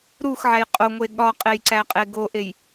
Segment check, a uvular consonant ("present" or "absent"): present